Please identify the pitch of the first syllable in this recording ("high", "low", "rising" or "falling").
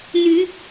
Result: rising